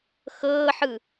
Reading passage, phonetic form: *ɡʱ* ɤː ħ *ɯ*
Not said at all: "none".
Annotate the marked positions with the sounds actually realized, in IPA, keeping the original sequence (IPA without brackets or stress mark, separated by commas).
x, ɯ